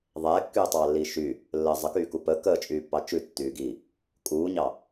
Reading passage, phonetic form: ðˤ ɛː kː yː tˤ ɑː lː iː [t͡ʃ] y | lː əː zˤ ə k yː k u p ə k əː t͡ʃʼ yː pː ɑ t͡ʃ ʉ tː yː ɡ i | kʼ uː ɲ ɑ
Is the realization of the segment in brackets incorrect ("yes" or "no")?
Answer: yes